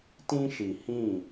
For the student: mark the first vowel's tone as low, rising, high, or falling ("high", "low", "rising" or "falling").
high